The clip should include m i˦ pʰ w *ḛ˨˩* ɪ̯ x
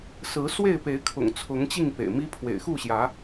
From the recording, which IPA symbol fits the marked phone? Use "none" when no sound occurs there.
ḛ˨˩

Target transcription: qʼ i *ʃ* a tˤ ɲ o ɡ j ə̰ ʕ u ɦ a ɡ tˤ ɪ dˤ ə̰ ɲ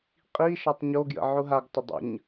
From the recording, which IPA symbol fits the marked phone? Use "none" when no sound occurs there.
ʃ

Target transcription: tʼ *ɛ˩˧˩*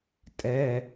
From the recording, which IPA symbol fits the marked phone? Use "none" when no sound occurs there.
ɛ˩˧˩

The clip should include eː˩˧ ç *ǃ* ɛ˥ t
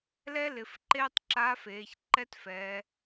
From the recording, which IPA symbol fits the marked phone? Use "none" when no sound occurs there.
ǃ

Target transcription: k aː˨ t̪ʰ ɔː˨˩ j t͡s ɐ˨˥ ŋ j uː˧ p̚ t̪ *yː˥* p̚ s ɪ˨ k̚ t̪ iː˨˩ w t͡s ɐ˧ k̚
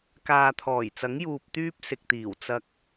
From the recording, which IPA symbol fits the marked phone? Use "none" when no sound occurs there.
yː˥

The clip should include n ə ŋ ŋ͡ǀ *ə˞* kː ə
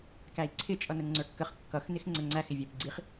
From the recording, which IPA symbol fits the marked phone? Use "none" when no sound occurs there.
ə˞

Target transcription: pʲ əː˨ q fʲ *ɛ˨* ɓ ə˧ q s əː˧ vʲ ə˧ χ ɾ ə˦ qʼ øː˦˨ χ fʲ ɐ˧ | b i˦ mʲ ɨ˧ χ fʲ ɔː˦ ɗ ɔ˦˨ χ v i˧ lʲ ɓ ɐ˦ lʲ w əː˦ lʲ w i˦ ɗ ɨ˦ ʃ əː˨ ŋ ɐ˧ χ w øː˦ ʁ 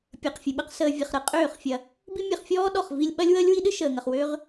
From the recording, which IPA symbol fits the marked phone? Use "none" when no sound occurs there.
ɨ˨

